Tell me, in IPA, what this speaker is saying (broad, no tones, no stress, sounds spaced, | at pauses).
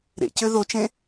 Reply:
ɾ ḛ c ø ð o t͡ʃ ẽ